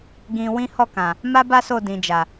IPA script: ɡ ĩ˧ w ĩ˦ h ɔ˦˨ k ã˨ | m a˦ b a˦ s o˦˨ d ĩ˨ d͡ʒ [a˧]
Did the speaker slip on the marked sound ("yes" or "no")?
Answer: yes